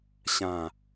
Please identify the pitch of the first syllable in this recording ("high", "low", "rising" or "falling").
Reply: low